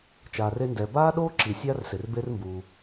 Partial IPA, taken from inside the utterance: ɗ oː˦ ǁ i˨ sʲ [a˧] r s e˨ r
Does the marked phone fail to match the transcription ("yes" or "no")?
yes